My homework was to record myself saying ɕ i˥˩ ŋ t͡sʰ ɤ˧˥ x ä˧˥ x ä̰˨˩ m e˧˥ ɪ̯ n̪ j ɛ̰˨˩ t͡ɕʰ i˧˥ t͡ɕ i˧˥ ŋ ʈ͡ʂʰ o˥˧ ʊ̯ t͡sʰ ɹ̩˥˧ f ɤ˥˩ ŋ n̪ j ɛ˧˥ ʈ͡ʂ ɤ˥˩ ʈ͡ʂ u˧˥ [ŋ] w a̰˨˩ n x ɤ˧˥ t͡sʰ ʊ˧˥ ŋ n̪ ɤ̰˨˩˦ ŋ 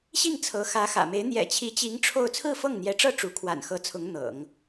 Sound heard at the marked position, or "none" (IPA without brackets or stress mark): kʰ